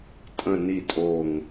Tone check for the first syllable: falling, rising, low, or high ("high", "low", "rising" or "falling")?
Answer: low